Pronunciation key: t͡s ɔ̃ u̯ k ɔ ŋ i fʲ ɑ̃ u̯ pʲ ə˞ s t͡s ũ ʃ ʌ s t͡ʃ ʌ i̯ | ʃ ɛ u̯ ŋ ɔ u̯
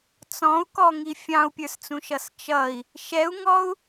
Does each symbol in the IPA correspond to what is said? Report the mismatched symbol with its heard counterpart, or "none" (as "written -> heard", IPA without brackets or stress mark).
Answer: none